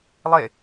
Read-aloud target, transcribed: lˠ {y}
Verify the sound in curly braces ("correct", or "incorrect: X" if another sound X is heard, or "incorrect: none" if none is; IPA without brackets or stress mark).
incorrect: e